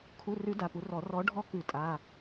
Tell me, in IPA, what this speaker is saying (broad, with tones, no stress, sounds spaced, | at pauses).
kʰ u˩˧˩ r ʉ˨˩˦ d a˩˧˩ p u˨˥ r ɔ˨˩˦ r ɔ˨˥ ɖʱ ɔ˦ k ʉ˨˩˦ tʼ a˩˧˩